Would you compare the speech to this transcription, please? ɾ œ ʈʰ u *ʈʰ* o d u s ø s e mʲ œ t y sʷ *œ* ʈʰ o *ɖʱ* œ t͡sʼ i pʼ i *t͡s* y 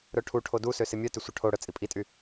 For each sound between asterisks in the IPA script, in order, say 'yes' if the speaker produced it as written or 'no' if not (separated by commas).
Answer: yes, yes, no, no